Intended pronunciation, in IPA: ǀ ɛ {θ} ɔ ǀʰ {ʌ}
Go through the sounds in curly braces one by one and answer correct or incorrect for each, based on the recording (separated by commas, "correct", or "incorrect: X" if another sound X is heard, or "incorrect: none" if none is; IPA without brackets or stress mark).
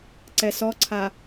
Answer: incorrect: s, incorrect: a